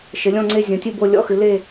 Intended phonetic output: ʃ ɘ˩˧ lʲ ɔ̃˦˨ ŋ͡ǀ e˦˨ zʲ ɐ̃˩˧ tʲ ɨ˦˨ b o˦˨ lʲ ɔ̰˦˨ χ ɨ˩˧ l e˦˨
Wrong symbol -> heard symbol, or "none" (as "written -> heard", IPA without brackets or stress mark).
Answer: χ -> x